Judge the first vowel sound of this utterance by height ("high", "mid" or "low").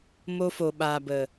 mid